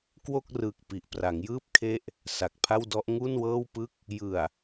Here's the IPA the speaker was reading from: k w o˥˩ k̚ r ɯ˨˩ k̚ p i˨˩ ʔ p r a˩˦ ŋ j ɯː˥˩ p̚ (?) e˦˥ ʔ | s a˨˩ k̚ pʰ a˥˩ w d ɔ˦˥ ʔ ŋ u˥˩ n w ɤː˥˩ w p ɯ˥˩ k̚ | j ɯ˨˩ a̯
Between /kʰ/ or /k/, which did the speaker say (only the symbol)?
kʰ